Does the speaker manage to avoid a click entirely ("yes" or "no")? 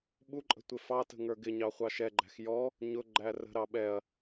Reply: no